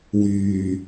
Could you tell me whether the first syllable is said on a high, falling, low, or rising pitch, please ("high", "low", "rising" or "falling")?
low